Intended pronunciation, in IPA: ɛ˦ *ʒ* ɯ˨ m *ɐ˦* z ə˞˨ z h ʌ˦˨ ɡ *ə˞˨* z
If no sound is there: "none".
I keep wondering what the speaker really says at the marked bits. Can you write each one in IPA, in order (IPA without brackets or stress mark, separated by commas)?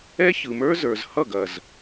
ç, ə˞˦, ɐ˨